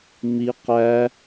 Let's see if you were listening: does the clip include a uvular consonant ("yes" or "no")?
yes